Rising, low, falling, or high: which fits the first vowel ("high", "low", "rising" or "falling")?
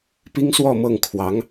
high